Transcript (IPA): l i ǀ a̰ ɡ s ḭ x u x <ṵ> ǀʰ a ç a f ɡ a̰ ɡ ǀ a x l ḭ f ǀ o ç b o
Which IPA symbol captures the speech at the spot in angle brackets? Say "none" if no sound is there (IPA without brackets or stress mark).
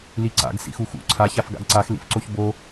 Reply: ṵ